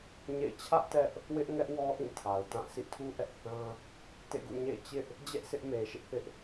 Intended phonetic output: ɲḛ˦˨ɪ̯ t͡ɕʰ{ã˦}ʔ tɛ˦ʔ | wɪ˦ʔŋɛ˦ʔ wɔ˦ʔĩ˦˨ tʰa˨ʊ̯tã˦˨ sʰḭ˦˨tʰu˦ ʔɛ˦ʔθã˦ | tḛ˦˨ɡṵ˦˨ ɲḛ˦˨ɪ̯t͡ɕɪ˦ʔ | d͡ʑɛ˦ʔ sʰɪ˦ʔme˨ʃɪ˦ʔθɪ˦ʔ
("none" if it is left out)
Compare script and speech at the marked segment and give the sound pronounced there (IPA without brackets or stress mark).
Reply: ä˦